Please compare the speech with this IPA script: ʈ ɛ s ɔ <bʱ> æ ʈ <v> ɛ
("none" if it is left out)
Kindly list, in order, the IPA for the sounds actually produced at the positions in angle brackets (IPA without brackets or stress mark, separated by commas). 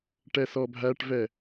bʱ, v